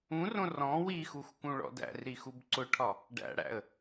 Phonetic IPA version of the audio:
ũ r õ r ɔ̃ w i x u x k ũ ɭ ɔ̰ d æ̰ r ɾ i x u b ǀ ʊ ʈʰ ɒ | ɖ æ̰ ɽ æ̰ ə̯

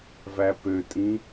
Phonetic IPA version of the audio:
v æ p ø tʼ ĩ

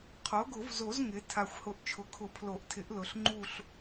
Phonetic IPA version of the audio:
qʰ o˩˥ ɡ ʊ˨˩˦ v z o˨˩˦ z ŋ ɪ˩˥ tʰ a˨˩ xʷ h ʊ˨˩ ʔ t͡ʃʰ ʊ˩˥ kʰ ʊ˨˩˦ pʰ l o˨˩˦ ʔ tʰ ɪ˩˥ ʔ l ʊ˩˥ ɬ ŋ͡ǃ u˦˨ ɬ

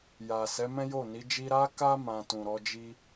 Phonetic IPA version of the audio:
j a˨ s ɛ˨˦ m ɛ̃˦ j o˦˨ n i˨˦ d͡ʒ i˧ ɾ a˦ k a˦ m ã˧ t ũ˨ ɾ ɔ˨˦ d͡ʒ i˦

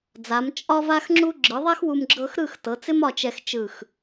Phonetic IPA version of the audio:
d͡z a˩˧ m t͡ʃʼ ɒ˥ v a˥ x ŋ͡ǁ u˥ ɡ͡ǁ ɯ˩˧ ðˤ ɛ˥ x w u˧ m ɡ͡ǁ ɤ˥ x ɾ ɯ˥˧ x t ɤ˩˧ t͡s ɪ˥ m ɒ˥˧ t͡ʃ ɛ˧ x t͡ʃ ɯ˧˩ x

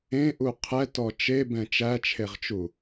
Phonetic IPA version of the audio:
ẽ ʔ u qʰ ɛ t ɔ t͡ʃ e b ɛ̃ t͡ʃ æ t͡ʃʰ e ʁ t͡ʃ u

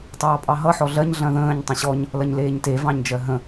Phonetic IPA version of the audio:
tˤ ɑː pʼ ɑ ɦ ʌ ħ ɔ ɮ ɜ ɲ ɮ ɐ̃ ð ə̃ː ɲ tˤ ə̃ ɕ ɔ ɲ | l ɐ ɲ l eː ɲ t e v ɑ̃ ɲ d͡ʒ ɜ ɦ ə̃

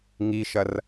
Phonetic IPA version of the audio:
ŋ i ʃ ɐ r

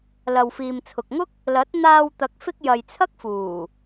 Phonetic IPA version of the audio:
l ɐ˨ w f iː˨ m t͡sʰ ʊ˨ k̚ ŋ ʊ˥ k̚ | l ɐ˨˥ t̚ n̪ aː˧ w t̪ ɐ˨˥ k̚ f ɪ˧ k̚ j ɐ˨ j t͡sʰ ɐ˥ k̚ f uː˨˩

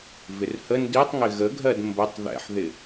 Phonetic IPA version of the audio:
v ɪ r h ə n d i tˤ ŋ ɪ ɣ ə ɡʱ ɜ d m b ə tˤ ð ɛ̰ ħ ð ɪ

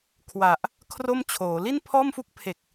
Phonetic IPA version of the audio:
kʰ w a˨˩ ʔ | kʰ r o˥˩ m t͡ɕʰ oː˩˦ l i˥˩ n pʰ ɔː˥˩ m f u˥˩ k̚ pʰ e˨˩ k̚

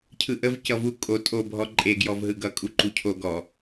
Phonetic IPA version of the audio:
cʰ ɯ ʔ ə v c ʌ v u kʼ o tʼ o bʱ ɔ ǃʼ e ɡ j ɔ v ɦ ɯ ɡ ʌ kʼ u ǃ u cʰ o ɡ ɔ

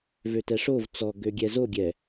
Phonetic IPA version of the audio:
v ø t ɛ ʂ o v t͡s ɔ ɡ ø ɡʲ ɛ z o ɡʲ ɛ

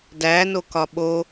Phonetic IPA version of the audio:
d æ n o k ɒ ɓ o

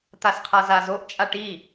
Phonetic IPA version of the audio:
t̪ a s qʰ a z a z o ʔ t͡ʃʼ a ʈ i

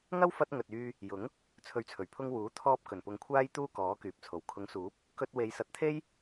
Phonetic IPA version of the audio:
ŋ ɐ˥ w f ɐ˧ t̚ ŋ ɵ˨ t̚ yː˧ | j ʊ˨˥ ŋ | t͡sʰ ɵ˨˥ ɥ t͡sʰ ɵ˨˩ ɥ pʰ ʊ˧ ŋ w uː˨˥ t̪ʰ ɔː˧ p̚ k ɵ˨˩ n p ʊ˨˧ ŋ kʷʰ aː˥ j t̪ uː˥ k ɔː˨˥ k yː˨ p̚ t͡sʰ o˨˩ w kʰ ʊ˨˥ ŋ s uː˨˥ p̚ | k ɵ˧ t̚ w e˨˧ j s ɐ˨˥ t̚ t̪ʰ e˥ j

